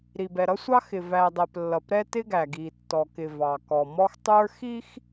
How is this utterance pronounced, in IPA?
ɾi˨b ɛ˨ɾʌ˦sʷɑ˦xɪ˨ væ˨dˤɛ˨p lːʌ˨pɾɛ˦ tɪ˦ɡæ˨ɡi˨ tːɔ˨kɪ˨ vɑ˨kɔ˨ mɔ˦xtˤə˞˦ xi˦x

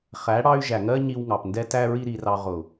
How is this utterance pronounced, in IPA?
χæ˨˦ɽɑ˧y̯ ʒæ˨ŋɜ˦ ɲi˧wŋɑ˨pndɛ˦tæ˦ ɹi˦ɾi˧rɑ˧ ʁʊ˨

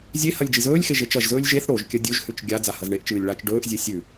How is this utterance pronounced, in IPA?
zʲehɐlʲ d͡ʒizɵːlʲxe ʒet͡ʃɐʒzɵːlʲ ʒeθ ɽoʒ kʲɐdʲɵʒhʉt͡ʃ ɡʲa d͡zahɐzɳeʔt͡ʃɨːlʲ ɭat͡ʃ ɖɵːʔzʲe sʲʉ

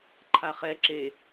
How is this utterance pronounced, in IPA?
ǃʰaχɛ ǁe

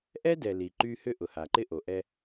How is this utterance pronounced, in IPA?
ʔɛ˦dɛ˨ li˨ǃy˦ hʏ˦ʔʊ˨ha˨ ǃɪ˦ʔo˨ʔɛ˦

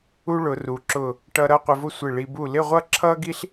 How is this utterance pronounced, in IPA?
u˥ɭʊ˩˧ru˩˧ǁʊ˧˩ | ʈʌ˧ɾʌ˥˧ qʷɪ˧vʊ˥˧ sʷɪ˧˩ ɭi˧ bu˧˩lɪ˥˧ʁʷʌ˥˧ ǁʰʌ˥ɡi˥ɬ

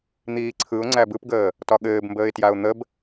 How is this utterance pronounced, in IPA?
n̪iːǀʰɯʊ̯ ŋ͡ǀæbɯpɡəː | tɒɠɘːbmbəːɪ̯tjaʊ̯ n̪əb

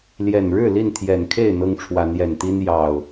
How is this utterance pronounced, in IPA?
ljɛ˨˩n ɻɻ̩˥˨ li˥˨nt̪ʰjɛ˨˩nkʰe˥˨ɪ̯ n̪ɤ˦ŋʈ͡ʂʰwa˨˦njɛ˨˩nt̪i˦n jɑ˨˩ʊ̯

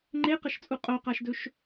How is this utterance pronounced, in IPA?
ŋ͡ǃeqɐʃt͡sʼu qʼoqaʃdɵʃ

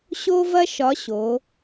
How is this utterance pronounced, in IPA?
ɕo˥vɐ˥ ʃɒ˧˥ɕo˩˧

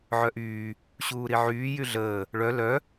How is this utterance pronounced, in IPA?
ʕœʔyː | ɕuːɾiʕyː jyɮəː | ɭœ lœ

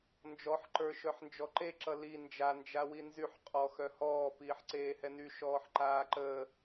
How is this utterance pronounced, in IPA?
nd͡ʒɔħǃə˞ ʃœħnd͡ʒɔǃeǁʌ li nd͡ʒand͡ʒa winzyħ qʼɔ xœhɔː piːħǀeːhɛny ʃɔːħǃaːǃəː

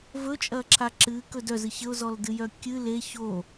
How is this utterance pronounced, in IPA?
vɵt͡ʃʼɐǁʰa ǁɨkɵ dœzɨ çəʊ̯zɔldɨjœ kʲɨ le ço

